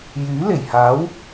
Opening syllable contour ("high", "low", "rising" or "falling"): rising